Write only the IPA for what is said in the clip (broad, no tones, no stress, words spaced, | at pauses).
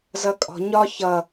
zʌkʼɔ̤ ɲɒ çʌ